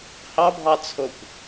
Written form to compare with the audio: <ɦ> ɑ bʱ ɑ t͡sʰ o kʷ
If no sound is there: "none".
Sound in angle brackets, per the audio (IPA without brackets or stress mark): h